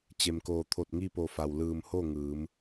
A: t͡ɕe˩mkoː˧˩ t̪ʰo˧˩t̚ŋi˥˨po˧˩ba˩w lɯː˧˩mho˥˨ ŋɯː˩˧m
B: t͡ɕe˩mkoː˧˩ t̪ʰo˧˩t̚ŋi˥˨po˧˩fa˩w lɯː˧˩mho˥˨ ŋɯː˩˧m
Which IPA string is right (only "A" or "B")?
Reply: B